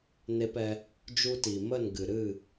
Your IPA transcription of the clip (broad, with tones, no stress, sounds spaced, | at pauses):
n e˧ p ɛ˧ | d͡ʒ u˧ t i˨ m ə˦˨ n ɡ ɨ˨ ɾ ɨ˦˨